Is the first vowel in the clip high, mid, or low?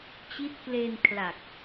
high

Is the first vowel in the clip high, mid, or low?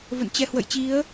mid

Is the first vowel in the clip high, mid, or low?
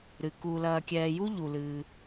high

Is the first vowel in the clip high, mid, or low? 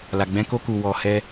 low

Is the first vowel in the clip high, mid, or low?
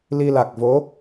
high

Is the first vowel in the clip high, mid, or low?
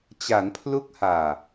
low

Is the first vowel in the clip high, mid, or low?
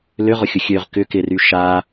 high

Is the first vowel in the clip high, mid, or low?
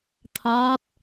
low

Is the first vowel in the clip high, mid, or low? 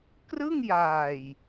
high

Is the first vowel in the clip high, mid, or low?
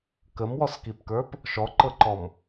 mid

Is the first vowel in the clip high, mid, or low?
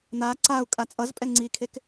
low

